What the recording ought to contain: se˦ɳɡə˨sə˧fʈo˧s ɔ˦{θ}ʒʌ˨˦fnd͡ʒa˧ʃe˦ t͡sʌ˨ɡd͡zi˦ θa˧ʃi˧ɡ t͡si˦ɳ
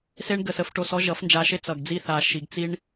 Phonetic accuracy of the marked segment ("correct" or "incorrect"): incorrect